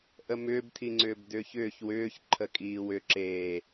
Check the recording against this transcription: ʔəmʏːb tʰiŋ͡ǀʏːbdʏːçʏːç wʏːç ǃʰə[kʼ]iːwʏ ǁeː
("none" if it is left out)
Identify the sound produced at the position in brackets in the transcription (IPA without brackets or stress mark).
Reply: kʼ